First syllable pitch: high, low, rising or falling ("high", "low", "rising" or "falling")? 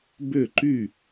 falling